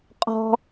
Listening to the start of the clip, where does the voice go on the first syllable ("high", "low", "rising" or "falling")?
high